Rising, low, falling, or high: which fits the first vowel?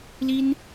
high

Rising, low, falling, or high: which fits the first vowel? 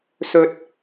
high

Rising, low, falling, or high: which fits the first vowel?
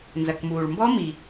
low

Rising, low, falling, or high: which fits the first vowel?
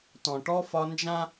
low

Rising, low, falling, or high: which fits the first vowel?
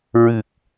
low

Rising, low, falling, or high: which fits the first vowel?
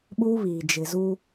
high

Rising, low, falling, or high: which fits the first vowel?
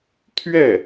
falling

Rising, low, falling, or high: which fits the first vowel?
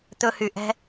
high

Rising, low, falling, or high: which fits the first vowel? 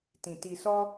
low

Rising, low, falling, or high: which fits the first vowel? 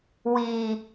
low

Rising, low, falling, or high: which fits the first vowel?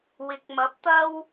rising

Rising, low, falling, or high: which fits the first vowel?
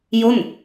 falling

